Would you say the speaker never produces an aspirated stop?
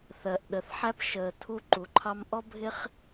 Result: no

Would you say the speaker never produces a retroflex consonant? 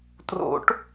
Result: no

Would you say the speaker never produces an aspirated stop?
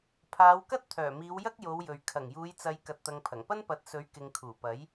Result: no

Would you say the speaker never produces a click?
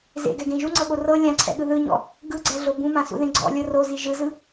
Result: no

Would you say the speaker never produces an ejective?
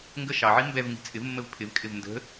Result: no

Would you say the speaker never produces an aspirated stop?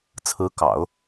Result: no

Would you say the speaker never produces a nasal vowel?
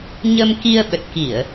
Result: yes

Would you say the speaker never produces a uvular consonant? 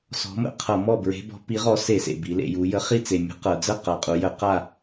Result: no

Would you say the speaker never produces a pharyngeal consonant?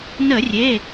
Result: yes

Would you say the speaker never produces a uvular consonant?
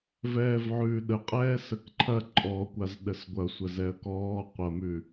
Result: no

